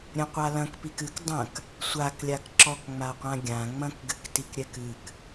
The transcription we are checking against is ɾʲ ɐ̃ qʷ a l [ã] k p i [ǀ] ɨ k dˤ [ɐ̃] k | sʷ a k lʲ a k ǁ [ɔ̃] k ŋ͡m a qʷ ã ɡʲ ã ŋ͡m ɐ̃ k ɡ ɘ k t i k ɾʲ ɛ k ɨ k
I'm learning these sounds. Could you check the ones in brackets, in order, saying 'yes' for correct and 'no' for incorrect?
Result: no, no, yes, no

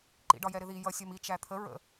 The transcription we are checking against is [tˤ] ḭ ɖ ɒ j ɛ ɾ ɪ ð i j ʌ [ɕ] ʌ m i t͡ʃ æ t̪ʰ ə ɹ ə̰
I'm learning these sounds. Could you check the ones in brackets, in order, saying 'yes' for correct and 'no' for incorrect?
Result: no, no

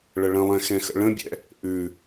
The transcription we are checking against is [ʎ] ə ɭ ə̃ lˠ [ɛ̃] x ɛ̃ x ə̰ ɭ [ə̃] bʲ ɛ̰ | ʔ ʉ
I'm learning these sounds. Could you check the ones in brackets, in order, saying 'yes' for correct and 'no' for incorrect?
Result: no, yes, yes

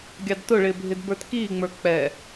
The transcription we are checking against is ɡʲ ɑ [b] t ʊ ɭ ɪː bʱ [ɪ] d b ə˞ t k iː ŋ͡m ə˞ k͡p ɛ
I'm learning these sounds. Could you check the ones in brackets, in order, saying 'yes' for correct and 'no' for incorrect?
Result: no, yes

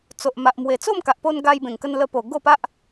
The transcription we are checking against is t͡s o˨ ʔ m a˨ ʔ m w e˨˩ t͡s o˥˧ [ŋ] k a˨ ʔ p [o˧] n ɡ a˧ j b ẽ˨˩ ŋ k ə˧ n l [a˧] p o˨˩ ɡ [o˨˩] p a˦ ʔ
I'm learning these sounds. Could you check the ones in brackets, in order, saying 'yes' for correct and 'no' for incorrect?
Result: no, yes, no, no

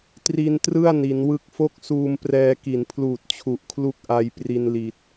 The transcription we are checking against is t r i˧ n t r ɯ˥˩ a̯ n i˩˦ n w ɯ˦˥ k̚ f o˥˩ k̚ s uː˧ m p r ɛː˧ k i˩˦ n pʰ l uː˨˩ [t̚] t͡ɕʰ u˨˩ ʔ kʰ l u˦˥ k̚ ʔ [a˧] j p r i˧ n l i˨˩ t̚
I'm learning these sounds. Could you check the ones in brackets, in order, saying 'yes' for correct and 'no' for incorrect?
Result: yes, yes

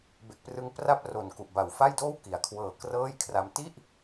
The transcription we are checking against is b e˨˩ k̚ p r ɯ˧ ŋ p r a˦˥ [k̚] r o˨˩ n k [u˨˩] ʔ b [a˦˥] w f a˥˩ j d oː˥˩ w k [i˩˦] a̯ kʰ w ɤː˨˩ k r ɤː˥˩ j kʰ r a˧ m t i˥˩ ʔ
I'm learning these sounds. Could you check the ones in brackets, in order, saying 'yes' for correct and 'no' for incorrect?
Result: no, yes, no, yes

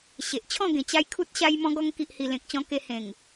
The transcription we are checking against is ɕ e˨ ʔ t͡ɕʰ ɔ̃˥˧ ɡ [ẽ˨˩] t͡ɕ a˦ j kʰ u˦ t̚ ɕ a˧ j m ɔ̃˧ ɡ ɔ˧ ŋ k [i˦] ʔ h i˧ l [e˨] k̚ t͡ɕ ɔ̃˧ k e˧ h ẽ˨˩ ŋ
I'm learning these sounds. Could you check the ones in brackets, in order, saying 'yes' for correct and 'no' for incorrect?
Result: yes, yes, no

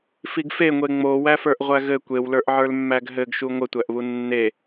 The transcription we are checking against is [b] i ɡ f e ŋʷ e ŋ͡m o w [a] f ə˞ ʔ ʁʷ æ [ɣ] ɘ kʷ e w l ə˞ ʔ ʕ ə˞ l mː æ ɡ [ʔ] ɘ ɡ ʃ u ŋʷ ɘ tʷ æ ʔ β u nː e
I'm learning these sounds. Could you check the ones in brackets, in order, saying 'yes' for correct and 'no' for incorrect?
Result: no, no, yes, no

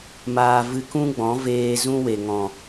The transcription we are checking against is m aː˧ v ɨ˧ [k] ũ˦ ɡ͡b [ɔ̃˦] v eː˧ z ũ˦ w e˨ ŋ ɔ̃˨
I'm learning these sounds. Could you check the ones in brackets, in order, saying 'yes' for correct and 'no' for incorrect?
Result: yes, no

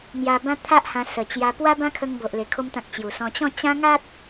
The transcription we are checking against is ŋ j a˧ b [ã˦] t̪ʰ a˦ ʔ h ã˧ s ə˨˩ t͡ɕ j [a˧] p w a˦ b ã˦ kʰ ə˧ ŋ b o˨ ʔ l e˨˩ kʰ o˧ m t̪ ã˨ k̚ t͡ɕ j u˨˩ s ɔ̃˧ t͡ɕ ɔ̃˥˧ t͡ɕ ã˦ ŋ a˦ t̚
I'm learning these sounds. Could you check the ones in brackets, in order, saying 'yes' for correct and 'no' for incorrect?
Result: yes, yes

